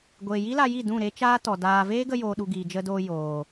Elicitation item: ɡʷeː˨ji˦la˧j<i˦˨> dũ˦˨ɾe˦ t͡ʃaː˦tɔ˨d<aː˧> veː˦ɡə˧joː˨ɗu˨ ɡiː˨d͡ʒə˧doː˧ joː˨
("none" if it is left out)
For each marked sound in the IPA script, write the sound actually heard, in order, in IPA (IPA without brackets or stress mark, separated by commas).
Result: i˦˨, aː˧